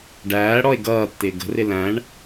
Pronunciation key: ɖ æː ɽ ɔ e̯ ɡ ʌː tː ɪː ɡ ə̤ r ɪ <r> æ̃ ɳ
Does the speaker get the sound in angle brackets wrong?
yes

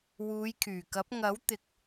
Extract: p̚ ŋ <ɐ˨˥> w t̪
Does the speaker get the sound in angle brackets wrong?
no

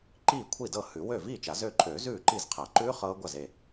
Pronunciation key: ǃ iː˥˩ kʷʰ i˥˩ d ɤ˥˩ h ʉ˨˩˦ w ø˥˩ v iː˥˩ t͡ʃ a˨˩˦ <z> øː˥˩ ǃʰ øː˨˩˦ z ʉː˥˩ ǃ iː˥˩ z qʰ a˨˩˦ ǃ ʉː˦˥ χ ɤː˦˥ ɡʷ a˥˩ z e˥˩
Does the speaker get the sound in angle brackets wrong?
no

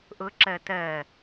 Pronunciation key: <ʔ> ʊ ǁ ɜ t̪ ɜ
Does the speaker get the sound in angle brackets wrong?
no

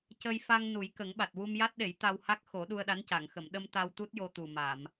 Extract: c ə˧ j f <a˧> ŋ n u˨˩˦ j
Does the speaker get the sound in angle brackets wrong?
no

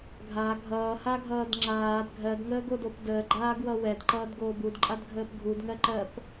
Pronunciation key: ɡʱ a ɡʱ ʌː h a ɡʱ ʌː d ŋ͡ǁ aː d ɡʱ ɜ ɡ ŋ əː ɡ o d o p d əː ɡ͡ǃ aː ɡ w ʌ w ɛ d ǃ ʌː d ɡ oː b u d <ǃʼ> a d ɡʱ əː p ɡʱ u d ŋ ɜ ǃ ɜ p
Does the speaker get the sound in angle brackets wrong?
no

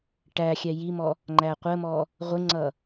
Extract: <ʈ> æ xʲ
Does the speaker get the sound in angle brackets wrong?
no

